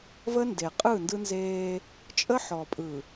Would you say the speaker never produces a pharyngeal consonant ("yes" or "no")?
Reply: no